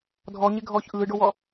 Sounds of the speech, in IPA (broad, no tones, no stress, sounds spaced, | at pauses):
dʱ ɔ ɲ e ɡʱ ɔː ç ʔ ɯː ɖ o w ɔ